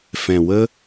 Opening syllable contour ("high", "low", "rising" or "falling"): low